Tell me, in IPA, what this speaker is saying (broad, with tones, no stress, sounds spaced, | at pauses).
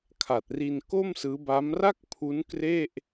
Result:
kʰ a˨˩ t̚ r i˧ n k o˥˩ m s ɯː˦˥ b a˦˥ m r a˥˩ k̚ pʰ u˦˥ n k r e˥˩ ʔ